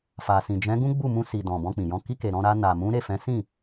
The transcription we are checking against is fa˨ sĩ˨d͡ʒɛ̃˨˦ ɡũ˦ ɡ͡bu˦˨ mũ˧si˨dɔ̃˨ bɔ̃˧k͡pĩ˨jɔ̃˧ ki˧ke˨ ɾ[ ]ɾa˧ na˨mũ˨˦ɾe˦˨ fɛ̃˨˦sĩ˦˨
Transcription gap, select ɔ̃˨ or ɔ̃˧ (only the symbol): ɔ̃˧